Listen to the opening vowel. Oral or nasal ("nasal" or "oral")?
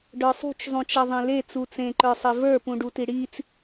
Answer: oral